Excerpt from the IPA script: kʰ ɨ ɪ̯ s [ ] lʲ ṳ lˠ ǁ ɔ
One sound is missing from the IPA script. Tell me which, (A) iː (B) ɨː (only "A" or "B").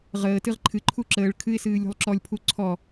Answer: B